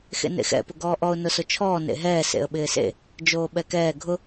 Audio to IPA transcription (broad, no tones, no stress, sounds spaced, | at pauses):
x ḛ n ḛ x ɛ̰ p ʊ ɡ ɔː ʔ ɔ ʊ̯ n ʊ s ʊ t͡ʃʰ ɔː n ḛ ɦ ɛː s ḛ ə̯ ɓ ɪː s ḛ | d͡ʒ oː ɓ ɛ k ɛː ɡʱ ʊ